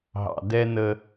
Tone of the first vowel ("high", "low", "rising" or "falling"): low